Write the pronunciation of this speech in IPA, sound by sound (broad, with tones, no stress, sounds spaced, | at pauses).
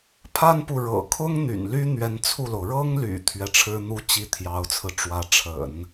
pʰ a˥ n p u˨ ɻ ɤ̰˨˩ kʰ ʊ˥ ŋ n̪ y̰˨˩ n l y˥ n̪ ɥ ɛ˧˥ n t͡sʰ u˥˩ l o˩ ʊ̯ ɻ ɤ˥ ŋ l y̰˨˩ t̪ʰ ɥ ɛ˧˥ ʈ͡ʂʰ ɻ̩˥ n̪ u˥ t͡ɕ i˥˩ t̪ʰ j ɑ˧˥ ʊ̯ t͡sʰ ɹ̩˧ ʈ͡ʂ w ä˧˥ ʈ͡ʂʰ ə̰˨˩˦ n